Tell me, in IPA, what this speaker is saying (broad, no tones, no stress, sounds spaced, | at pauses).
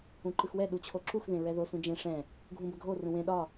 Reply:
ũ ǃ ɯ x w ɛ ɗ u t͡ɕʰ o ǁ u x ð ẽ ɹ ɛ ð o s ũ d͡ʒ ẽ ʂ ɛ̃ | ɡʱ ũ b ə ɡʱ o r ũ w ẽ ɗ ɒ